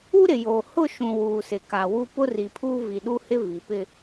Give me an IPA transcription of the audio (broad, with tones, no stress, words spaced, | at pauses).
u˦ɾɪ˨jo˨ hʊ˦˨ʃũ˨ wuː˨sɪ˨ka˨wu˦ pʊ˦ri˨pʰuː˦ vi˨ɗu˦hɪ˦ vi˨pɪ˦